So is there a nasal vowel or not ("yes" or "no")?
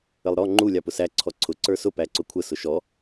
no